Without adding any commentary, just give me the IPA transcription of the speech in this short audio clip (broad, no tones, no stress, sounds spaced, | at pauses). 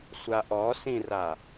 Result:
sʷ a ʔ ɔ s ĩ r a